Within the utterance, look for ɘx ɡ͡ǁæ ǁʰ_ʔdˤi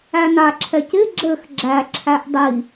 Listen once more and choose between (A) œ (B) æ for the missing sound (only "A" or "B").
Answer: B